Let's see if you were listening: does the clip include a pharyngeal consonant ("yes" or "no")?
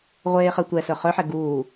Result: yes